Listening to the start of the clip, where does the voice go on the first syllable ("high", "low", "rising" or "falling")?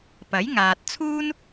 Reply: rising